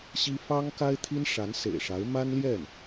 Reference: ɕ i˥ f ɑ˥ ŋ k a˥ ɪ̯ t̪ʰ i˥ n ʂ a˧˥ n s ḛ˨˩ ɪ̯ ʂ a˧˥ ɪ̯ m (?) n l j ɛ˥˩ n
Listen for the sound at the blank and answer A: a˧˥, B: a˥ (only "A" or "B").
B